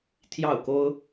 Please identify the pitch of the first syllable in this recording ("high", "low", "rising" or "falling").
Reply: falling